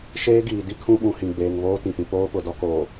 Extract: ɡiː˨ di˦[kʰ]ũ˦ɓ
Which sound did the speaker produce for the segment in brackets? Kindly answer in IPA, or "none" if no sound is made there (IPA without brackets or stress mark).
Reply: kʰ